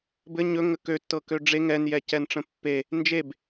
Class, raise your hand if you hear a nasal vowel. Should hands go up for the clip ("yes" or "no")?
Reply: yes